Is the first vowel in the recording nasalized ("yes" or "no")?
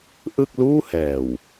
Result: no